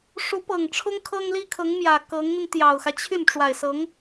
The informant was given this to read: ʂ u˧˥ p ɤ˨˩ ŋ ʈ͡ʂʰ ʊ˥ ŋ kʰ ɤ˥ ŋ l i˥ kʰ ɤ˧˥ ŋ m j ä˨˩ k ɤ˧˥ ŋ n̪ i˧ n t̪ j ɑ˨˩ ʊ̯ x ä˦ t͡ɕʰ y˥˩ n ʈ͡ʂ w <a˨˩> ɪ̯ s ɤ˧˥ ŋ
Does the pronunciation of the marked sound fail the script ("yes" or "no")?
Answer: no